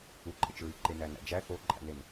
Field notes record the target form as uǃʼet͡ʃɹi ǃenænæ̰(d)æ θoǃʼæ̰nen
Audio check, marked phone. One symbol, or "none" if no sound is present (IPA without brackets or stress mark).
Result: d͡ʒ